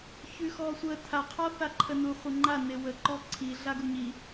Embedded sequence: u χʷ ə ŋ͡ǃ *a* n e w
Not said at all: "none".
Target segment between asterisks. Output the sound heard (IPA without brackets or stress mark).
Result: a